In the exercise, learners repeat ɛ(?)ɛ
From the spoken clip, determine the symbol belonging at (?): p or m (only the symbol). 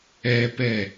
p